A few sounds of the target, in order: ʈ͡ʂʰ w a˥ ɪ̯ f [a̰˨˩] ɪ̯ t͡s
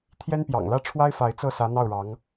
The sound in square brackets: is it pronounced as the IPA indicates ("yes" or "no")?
no